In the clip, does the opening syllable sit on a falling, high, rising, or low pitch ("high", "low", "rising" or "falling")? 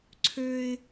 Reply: high